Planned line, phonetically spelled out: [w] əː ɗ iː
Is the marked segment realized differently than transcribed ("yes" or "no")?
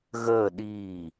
yes